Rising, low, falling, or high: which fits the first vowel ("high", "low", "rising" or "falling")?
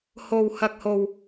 low